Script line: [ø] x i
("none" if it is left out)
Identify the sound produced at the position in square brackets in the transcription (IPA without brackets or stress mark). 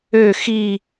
ø